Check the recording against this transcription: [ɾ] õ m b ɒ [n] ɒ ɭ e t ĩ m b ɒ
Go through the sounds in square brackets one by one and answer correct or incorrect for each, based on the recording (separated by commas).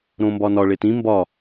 correct, correct